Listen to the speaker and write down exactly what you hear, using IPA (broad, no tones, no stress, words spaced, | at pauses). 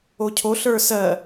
ocʰoɬ ə˞sɜ